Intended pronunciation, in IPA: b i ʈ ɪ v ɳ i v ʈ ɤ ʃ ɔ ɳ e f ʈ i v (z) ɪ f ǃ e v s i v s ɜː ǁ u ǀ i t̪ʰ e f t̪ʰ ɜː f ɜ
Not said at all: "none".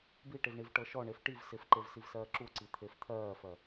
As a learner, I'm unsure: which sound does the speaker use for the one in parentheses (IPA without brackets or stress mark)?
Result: s